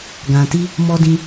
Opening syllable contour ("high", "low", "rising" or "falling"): low